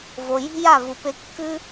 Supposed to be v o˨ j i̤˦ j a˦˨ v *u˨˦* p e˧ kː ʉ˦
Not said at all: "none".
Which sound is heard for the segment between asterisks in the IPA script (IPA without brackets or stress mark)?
u˨